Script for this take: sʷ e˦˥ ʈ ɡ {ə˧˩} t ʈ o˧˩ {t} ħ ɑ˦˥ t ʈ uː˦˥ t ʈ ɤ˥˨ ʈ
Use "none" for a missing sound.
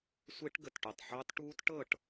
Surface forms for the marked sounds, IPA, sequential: ə˧˩, tˤ

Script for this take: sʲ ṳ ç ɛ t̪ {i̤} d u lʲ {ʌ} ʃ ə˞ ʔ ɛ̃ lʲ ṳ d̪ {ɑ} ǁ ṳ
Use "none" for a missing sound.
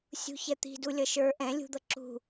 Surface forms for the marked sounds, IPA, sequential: i̤, ʌ, ʌ

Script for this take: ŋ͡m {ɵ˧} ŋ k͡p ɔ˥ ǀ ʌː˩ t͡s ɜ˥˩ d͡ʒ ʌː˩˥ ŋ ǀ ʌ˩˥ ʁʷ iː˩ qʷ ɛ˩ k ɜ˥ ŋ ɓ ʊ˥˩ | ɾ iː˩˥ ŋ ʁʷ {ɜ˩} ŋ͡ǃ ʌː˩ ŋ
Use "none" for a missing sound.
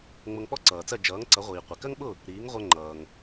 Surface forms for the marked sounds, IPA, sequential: ʊ˧, ɜ˧

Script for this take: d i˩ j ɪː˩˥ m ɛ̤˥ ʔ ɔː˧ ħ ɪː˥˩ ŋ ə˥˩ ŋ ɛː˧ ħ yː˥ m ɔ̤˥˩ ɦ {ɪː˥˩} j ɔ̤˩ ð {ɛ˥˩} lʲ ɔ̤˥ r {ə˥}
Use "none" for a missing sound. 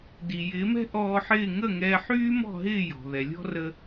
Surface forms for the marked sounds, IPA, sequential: ɪː˥˩, ɛ˩, ə˥

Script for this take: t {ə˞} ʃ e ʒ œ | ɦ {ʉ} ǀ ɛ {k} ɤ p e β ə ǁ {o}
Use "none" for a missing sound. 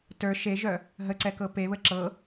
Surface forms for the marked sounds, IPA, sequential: ə˞, ə, k, ɤ

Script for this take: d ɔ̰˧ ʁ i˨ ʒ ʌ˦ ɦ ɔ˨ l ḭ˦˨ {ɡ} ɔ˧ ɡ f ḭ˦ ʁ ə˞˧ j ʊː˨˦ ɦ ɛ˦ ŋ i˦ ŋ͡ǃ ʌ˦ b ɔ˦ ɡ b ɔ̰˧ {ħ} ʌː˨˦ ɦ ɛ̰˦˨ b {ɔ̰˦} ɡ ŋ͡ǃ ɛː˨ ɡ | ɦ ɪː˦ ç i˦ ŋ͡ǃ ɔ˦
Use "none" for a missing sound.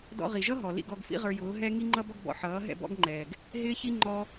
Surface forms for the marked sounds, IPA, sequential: ɡ, ħ, ɔ̰˦

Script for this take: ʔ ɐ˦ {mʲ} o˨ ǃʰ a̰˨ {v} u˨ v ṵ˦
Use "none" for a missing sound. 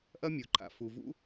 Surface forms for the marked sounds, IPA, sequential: mʲ, f

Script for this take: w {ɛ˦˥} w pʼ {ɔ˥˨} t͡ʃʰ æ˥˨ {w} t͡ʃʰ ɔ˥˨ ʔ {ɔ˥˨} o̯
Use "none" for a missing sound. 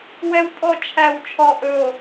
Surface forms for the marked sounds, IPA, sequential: ɛ˦˥, ɔ˥˨, w, ɵ˥˨

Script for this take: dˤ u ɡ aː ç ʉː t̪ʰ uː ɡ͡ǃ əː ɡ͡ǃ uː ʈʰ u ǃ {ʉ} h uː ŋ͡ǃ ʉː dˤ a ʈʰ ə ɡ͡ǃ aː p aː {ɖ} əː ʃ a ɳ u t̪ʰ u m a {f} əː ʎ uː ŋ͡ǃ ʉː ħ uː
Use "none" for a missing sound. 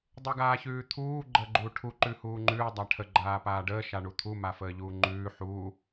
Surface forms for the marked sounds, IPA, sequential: ʉ, ɖ, f

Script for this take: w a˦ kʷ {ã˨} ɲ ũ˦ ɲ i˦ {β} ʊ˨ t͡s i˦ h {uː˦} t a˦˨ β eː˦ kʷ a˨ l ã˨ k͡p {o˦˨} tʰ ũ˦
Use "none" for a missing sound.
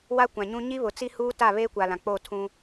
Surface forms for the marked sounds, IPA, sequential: ã˨, β, uː˦, o˦˨

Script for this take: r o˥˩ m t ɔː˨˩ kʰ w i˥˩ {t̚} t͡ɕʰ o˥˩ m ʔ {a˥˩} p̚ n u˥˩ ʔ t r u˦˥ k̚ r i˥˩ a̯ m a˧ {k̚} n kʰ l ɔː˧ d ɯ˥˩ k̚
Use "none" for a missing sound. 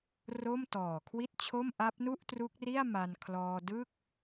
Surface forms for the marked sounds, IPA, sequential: t̚, a˦˥, none

